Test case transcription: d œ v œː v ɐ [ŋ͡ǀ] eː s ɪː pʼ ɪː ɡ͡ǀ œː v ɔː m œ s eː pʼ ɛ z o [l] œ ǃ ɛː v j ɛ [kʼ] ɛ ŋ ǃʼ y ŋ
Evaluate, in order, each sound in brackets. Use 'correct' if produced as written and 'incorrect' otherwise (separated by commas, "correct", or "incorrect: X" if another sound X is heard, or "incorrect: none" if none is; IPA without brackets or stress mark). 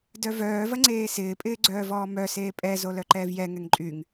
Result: correct, correct, incorrect: ŋ